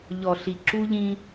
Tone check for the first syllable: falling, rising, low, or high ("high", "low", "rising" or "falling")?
low